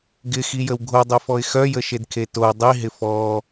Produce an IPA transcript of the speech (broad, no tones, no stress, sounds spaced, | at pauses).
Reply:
ɡ ɪ x i j ə w ɡʱ o dˤ y f ɔ ɪ̯ x œ j ə ʃ e d kʰ e t o dˤ i ɦ ɪ f ɔ